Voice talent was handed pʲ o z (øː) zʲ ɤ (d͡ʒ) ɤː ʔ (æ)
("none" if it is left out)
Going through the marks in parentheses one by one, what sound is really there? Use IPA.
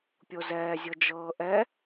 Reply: ɛː, d͡ʒ, ɛ

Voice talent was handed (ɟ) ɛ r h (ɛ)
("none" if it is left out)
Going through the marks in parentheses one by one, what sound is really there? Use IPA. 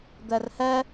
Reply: d̪, ɛ

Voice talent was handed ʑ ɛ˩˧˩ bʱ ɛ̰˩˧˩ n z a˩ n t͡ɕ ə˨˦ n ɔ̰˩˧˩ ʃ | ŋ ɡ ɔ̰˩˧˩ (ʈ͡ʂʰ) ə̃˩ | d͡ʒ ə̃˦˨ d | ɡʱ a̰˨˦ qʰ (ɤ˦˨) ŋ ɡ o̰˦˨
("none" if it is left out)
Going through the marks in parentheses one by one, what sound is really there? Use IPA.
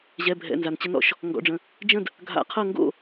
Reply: ɖ͡ʐ, ɤ˦˨

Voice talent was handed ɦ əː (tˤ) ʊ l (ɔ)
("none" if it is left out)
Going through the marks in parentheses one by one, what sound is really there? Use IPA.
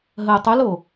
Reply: tˤ, o

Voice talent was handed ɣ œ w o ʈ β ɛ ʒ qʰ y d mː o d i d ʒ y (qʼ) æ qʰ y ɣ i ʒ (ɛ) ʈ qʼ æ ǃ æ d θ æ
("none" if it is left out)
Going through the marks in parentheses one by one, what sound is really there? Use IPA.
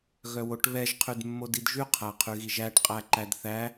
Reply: qʰ, æ

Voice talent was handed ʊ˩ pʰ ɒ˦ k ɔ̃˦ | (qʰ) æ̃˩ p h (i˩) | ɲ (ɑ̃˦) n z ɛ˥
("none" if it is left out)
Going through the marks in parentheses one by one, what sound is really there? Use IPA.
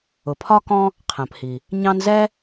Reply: qʰ, i˩, ɑ̃˦

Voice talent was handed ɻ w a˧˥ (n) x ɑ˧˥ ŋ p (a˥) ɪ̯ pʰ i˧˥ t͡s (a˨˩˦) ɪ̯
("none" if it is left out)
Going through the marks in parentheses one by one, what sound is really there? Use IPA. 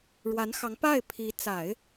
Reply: n, a˥˩, a˨˩˦

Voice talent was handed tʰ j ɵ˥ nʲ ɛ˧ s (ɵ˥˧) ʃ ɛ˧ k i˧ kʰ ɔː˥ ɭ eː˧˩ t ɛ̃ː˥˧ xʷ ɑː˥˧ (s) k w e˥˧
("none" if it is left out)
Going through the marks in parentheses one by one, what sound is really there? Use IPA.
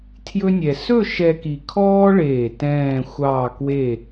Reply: ɵ˥˧, none

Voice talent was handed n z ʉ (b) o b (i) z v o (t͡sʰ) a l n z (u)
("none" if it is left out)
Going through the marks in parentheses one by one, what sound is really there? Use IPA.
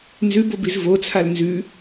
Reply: b, i, t͡sʰ, ʉ

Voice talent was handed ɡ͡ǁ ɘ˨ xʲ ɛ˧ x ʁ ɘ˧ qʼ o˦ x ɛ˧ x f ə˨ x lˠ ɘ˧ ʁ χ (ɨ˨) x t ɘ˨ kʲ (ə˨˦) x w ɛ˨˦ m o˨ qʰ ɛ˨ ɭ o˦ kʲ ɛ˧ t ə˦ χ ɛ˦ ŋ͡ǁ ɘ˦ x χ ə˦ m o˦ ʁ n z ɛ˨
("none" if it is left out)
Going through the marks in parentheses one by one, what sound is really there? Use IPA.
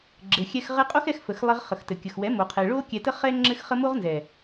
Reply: ə˨, ə˨

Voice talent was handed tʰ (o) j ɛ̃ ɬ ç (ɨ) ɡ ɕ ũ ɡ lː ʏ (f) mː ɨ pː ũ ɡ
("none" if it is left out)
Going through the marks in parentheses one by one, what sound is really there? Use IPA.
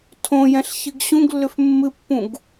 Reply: õ, ɨ, f

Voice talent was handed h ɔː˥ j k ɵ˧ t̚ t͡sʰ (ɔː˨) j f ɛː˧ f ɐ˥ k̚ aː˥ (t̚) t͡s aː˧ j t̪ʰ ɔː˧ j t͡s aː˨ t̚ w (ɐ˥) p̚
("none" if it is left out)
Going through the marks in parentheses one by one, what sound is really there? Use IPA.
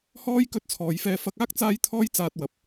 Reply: ɔː˨, k̚, ɐ˨

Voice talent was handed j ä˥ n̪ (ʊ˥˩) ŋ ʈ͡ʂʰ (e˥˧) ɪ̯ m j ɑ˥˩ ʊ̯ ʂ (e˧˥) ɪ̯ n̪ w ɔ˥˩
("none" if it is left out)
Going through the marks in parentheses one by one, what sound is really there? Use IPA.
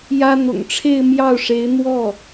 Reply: ʊ̰˨˩, e˥˧, e˧˥

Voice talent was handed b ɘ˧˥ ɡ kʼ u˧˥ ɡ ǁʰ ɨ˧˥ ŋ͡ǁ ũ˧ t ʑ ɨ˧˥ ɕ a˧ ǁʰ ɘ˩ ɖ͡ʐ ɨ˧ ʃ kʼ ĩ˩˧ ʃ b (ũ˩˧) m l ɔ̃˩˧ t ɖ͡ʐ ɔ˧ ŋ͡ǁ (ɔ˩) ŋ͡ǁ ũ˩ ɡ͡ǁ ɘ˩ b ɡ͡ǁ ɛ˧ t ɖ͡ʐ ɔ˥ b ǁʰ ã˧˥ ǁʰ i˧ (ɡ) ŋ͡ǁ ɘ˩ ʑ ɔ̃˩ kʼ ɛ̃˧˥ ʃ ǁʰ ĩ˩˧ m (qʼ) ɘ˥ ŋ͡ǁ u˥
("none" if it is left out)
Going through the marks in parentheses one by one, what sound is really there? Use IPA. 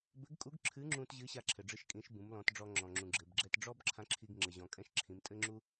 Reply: ũ˩˧, ɔ̃˩, ɡ, tʼ

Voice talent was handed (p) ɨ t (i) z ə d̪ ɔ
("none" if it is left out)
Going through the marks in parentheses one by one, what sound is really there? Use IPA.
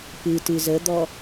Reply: p, ɨ

